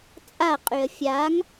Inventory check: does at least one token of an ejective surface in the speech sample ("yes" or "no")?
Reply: yes